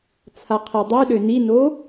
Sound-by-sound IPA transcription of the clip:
t͡sʰ a qʰ e dˤ ʉ ɗ ø n i n o

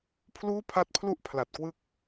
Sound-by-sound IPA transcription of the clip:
pʰ l uː˥˩ pʰ a˦˥ t̚ pʰ l u˥˩ ʔ pʰ l a˨˩ t̚ k w ɯ˦˥ k̚

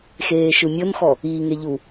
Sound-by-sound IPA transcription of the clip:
x eː ʃ ɯ mʲ ɤ n x ɔ | iː ŋ e ʎ u

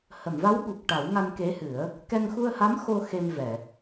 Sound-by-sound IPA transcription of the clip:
h ə˨˩˨ m v a˧˥ w ɓ u˨˩ k̚ ʈ a˨˩˦ w ŋ a˧ n k e˧˥ h ɨ˨˩˦ ə̯ | k ɛ˧ ŋ x u˧ ə̯ h a˧˥ m x o˧ x e˧ m v ɛ˨˩˨

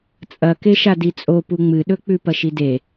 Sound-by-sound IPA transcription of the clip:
t͡sʼ ɐ k e ʃ a d i t͡sʼ o p u ŋ͡m ɨ ɗ ɵ k͡p ʉ p ɐ ʃ i d e

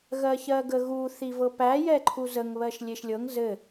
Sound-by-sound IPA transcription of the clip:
ɣ ɜ ç ɜ ɡ ə ɣ u θ i v ɤ p æ j ɛ ǃʰ u z ə ŋ β ɜ ʃ lʲ e ʃ lʲ ɤ ŋ z ɘ

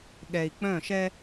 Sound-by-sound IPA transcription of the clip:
ɠ ɛ˨ i̯ k͡p œ̃˦˨ ʃ ɛ˦

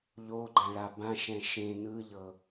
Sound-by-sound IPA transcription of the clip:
ʎ o ɡ͡ǃ ã ɭ a b ã ʃ ɛ̃ ʃ ẽ n ɯ ʎ ɤ

